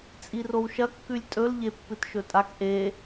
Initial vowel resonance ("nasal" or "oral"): oral